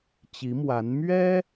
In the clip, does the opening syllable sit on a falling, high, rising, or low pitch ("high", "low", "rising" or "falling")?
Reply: rising